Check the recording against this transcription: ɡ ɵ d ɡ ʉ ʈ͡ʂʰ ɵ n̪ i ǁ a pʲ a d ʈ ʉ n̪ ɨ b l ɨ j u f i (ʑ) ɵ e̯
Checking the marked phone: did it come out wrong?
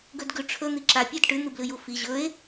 no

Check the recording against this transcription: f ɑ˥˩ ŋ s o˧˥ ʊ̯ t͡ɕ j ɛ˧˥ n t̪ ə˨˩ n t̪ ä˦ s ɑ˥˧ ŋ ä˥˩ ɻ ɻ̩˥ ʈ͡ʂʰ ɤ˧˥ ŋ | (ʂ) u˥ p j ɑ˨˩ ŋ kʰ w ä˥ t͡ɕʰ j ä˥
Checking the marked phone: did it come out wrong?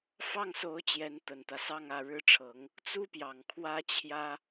yes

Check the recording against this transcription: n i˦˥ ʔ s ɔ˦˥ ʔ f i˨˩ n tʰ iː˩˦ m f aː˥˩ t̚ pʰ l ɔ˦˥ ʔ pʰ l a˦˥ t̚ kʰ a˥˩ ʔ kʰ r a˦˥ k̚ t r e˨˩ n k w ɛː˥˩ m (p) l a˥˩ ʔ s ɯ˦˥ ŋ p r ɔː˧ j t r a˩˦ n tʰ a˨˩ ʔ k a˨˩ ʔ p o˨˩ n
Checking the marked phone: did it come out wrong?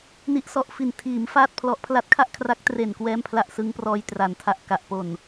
yes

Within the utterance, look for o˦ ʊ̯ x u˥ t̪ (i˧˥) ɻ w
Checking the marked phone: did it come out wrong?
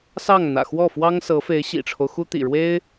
yes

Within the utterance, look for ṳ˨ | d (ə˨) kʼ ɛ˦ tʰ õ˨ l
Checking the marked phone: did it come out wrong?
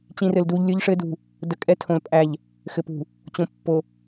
no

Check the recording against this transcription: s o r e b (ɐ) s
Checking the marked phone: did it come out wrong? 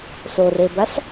no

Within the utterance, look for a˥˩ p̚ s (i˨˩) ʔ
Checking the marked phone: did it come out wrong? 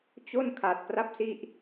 yes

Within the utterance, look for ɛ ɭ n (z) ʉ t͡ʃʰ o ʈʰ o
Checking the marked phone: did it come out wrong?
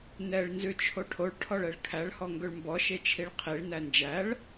no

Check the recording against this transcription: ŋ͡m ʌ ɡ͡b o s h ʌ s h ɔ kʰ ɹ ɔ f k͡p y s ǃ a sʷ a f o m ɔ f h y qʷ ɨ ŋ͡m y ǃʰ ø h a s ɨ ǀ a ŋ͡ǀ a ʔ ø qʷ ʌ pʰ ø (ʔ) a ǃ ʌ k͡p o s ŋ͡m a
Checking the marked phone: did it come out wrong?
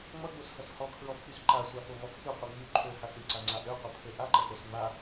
no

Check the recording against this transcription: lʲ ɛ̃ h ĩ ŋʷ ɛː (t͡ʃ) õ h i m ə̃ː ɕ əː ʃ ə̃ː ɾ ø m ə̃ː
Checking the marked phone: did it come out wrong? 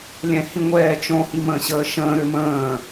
no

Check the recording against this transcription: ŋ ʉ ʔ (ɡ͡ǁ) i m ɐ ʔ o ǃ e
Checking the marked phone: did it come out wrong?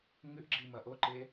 no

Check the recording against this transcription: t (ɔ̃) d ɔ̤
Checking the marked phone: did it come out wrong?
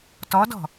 yes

